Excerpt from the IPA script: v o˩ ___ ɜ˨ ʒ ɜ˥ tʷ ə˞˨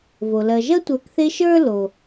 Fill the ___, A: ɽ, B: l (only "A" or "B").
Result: B